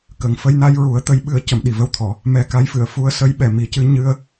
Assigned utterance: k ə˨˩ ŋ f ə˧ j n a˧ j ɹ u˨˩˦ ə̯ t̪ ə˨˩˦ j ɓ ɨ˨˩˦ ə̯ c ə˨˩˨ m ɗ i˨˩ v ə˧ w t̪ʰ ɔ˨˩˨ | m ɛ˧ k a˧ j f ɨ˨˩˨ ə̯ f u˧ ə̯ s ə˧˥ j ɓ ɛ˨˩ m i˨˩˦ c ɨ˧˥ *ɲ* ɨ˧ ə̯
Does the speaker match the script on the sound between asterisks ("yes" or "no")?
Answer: yes